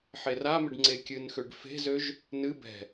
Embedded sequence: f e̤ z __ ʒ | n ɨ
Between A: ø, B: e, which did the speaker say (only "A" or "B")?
A